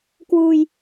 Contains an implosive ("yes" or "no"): no